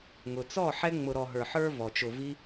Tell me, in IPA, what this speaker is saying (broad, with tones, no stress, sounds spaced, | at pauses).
ŋ ʊ˨ t͡s ɔ˦˨ ħ ɛ˦ ŋ͡m ʊ˧ ɾ ɔ˨ ɦ ə˞˨ ħ ə˞˧ v ɔ˨ t͡ʃ ʊ˧ v i˦